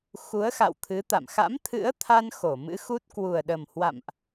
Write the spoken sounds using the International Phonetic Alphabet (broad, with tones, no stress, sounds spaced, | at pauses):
x u˨˦ ə̯ x a̰˧˨ w t̪ʰ ɨ˨˦ t̪ a̰˧˨ m x a̰˧˥ m t̪ʰ ɨ̰˧˥ ə̯ t̪ʰ a˧ n x o˧˩ m ɨ̰˧˥ x u˦˥ t̚ k w u˨˩ ə̯ ɗ ə˨˩ m h w a̰˧˨ m ʔ